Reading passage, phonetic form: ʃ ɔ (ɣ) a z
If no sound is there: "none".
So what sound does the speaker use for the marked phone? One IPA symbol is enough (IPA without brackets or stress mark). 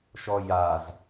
j